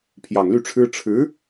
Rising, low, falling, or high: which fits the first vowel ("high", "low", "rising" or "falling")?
low